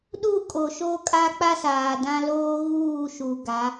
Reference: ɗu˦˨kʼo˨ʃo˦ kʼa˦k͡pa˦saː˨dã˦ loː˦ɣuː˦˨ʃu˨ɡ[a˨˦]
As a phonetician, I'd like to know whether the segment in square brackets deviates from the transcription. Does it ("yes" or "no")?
no